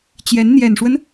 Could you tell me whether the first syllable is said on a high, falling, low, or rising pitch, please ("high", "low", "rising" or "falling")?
rising